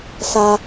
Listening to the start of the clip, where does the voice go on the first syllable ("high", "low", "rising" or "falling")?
high